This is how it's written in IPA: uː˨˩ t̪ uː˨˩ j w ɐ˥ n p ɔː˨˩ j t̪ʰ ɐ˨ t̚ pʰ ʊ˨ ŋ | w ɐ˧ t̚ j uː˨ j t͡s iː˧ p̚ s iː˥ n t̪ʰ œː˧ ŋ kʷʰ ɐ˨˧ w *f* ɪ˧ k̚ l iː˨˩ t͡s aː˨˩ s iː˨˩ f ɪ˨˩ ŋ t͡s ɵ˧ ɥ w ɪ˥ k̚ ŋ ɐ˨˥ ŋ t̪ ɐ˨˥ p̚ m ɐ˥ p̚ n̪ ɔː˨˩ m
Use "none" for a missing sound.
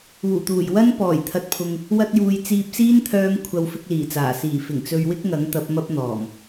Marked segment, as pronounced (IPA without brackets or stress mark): f